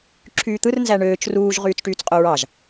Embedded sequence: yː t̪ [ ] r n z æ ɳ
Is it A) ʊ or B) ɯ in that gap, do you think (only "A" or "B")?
B